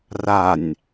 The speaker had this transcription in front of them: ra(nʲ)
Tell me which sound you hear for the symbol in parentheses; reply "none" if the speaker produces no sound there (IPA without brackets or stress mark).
nʲ